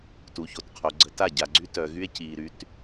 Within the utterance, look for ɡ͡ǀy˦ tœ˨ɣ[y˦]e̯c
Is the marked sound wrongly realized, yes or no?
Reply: no